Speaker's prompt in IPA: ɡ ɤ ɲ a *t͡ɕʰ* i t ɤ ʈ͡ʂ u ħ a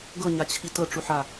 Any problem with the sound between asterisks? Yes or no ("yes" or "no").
no